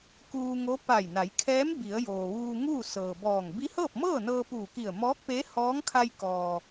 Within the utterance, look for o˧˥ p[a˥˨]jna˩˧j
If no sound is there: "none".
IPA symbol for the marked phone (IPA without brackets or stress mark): a˧˩